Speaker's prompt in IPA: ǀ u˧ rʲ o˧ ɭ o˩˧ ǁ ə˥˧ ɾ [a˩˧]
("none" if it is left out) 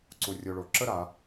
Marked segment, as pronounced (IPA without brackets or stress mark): a˩˧